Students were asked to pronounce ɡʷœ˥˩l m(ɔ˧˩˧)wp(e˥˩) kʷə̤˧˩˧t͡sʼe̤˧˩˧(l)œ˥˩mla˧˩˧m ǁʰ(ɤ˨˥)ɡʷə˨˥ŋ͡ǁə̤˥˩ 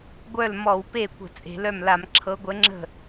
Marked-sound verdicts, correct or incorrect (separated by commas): correct, correct, correct, correct